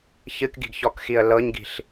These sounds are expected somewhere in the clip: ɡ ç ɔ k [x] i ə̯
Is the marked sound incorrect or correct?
correct